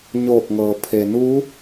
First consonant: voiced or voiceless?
voiced